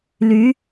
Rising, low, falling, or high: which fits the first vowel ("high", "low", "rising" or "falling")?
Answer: rising